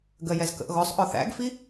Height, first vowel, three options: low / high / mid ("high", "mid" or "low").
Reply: mid